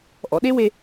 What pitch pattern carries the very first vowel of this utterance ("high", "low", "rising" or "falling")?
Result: low